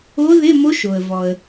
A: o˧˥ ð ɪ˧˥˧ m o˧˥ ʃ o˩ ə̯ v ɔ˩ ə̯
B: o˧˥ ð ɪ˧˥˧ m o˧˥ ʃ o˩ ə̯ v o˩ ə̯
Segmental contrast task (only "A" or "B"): A